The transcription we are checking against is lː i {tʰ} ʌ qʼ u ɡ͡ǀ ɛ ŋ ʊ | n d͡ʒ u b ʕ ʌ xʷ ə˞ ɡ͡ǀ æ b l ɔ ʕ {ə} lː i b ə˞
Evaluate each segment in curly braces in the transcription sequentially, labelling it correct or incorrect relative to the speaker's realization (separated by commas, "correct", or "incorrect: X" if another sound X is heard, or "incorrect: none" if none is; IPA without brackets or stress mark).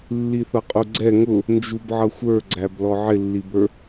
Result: incorrect: θ, incorrect: ɪ